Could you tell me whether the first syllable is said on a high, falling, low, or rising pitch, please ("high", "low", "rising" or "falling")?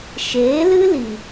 rising